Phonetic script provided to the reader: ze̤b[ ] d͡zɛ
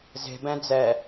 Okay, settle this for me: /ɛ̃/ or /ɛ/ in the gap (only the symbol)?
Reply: ɛ̃